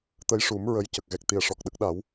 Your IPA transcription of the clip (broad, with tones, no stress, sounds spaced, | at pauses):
t̪ ə˧˥ j ʂ u˨˩˦ m ɹ ə˧˥ j c ə˨˩ k̚ ɣ ɛ˨˩ k̚ t̪ i˨˩ ə̯ ʂ ɔ˨˩ k̚ ɗ ə˦˥ k̚ ɗ a˨˩˦ w